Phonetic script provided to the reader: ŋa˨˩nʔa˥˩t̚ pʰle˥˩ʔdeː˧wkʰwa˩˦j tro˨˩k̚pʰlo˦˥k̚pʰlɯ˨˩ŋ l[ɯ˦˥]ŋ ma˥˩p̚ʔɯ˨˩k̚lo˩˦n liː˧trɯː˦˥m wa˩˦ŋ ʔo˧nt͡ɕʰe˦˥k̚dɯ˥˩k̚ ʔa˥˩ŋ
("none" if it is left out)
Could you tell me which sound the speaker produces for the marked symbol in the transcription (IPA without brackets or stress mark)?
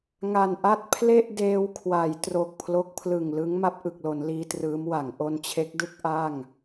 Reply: ɯ˦˥